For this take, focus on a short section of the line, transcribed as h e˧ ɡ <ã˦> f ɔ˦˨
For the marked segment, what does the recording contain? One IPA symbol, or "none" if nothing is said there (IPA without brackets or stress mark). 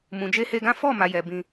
ã˦